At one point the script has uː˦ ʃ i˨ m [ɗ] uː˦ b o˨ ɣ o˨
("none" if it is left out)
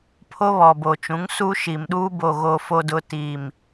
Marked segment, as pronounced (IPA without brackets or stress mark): ɗ